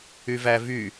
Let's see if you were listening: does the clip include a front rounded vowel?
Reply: yes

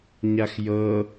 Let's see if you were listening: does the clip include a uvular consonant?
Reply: no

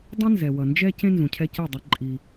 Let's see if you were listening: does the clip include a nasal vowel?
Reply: yes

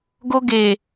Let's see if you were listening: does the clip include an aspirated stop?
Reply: no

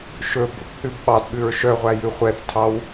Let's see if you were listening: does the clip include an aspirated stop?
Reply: yes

